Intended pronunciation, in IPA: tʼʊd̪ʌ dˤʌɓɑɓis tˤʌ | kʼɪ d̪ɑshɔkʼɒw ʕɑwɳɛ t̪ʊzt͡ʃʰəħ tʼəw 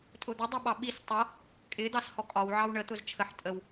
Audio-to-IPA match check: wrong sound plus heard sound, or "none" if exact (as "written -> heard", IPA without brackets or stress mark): ɛ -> ə